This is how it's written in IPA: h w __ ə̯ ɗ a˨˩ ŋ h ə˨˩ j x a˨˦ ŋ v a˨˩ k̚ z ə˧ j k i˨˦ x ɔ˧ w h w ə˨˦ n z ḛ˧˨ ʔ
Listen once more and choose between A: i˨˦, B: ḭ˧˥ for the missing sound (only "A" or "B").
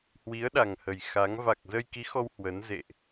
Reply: A